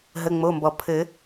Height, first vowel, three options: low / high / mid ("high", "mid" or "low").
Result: mid